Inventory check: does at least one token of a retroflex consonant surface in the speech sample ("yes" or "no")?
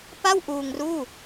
no